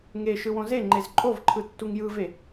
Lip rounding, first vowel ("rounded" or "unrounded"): unrounded